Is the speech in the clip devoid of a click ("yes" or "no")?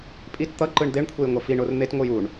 no